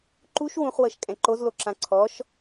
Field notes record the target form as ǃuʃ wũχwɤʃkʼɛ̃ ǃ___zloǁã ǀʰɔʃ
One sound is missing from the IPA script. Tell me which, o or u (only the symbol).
o